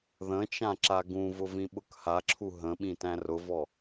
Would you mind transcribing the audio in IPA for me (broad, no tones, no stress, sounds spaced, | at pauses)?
ð ə̃ t͡ʃ ã ǁ a ɡ ũ v ʊ v ĩ ɓ ʊ k h a ǁʰ u ɦ ə̃ ɓ ĩ t æ̃ r ʊ v ɔ